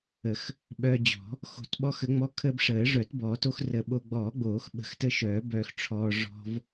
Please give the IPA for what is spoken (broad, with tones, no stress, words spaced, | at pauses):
ə˨˩˦x | ɓœː˧ d͡ʑɔ̤˨˩˦ | xo̤˨˩˦tɓɔ˧xə˨˩˦ŋ͡mɔ˧ kʰəː˧bʂəː˨˩˦ʐœ˨˩˦t bɔː˨˩˦to˧xrə˨˩˦ ɓo˧ ɡ͡bɔː˨˩˦ɡ͡boː˨˩˦x ɓə̤˨˩˦xtə˧ʃœː˨˩˦ bœː˧xʈ͡ʂʰɔː˧ ʐɔ̤˧v